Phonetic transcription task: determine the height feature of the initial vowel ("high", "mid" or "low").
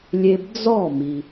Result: mid